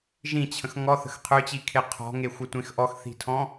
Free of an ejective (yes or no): yes